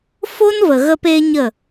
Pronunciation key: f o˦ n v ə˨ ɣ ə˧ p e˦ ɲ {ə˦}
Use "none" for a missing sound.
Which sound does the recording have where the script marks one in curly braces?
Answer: ə˦˨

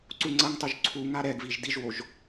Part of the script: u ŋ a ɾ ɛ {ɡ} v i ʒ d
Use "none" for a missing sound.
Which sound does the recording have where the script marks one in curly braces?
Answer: ɡ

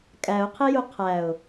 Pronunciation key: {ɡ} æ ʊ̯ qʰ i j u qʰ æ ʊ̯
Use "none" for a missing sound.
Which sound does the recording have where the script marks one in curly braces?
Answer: kʼ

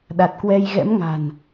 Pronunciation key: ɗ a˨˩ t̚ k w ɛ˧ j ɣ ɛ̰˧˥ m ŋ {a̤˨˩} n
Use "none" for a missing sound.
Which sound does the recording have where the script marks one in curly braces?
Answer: a̤˨˩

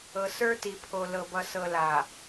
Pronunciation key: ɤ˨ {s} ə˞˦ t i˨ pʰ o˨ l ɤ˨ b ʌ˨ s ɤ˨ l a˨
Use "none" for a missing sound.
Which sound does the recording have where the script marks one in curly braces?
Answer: s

